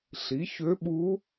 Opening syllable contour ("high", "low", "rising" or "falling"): rising